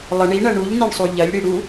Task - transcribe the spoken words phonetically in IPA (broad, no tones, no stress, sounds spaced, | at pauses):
lˠ ə ɳ i ɳ ɐ ɳ u ʎ n e ɳ sˤ u ʎ ɐ lʲ ɽ i ɽ u